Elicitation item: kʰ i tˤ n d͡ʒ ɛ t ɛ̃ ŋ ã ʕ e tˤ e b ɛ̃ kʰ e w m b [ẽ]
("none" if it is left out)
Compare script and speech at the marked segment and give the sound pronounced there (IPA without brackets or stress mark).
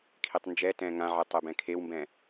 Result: ɛ̃